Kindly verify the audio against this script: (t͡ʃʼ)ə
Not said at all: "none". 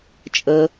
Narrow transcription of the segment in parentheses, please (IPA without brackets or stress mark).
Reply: t͡ʃʼ